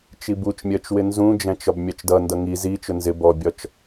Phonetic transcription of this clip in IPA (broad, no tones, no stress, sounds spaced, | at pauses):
t͡ʃ i b u t͡ʃ mʲ ɜ t͡ʃ w ɪ n z ũ d͡ʒ æ̃ t͡ʃ ɒ b mʲ ɑ t͡ʃ d ʌ n d ʌ ŋ i z i t͡ʃ ʊ n z ɪ b ɔ bʲ ɒ t͡ʃ